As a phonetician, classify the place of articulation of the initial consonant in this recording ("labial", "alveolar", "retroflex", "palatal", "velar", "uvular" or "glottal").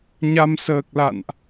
palatal